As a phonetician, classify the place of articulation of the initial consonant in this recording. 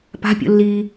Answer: labial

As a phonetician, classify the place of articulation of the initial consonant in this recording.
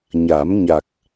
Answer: palatal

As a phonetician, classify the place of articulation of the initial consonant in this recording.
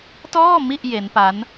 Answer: alveolar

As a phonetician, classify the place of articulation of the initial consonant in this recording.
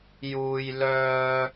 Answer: palatal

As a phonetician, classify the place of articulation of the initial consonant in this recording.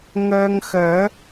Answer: velar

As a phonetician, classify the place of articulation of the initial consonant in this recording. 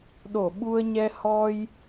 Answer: alveolar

